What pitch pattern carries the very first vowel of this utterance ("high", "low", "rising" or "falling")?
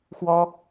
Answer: high